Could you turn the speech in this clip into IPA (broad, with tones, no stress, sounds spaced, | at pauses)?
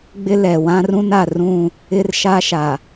ɡ͡b ɪ˦ l ɛ˨ w ã˦ r ũ˦ n a˨ r ũ˦˨ | ɪ˦ r ʃ a˦ ʃ a˨